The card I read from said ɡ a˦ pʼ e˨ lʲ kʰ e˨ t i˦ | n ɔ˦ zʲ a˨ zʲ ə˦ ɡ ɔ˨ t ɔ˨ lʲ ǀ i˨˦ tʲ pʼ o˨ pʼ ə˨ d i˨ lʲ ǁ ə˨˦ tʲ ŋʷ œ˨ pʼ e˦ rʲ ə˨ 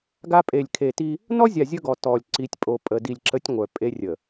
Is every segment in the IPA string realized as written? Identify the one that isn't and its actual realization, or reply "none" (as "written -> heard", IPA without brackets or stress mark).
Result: none